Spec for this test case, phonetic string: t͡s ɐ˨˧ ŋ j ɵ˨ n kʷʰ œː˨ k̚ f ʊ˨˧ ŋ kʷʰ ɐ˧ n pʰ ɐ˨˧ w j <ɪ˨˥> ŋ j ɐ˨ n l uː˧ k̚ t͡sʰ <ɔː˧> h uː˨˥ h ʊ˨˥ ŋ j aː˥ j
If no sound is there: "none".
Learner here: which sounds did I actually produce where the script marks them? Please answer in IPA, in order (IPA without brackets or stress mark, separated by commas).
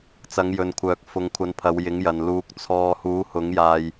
ɪ˨˥, ɔː˧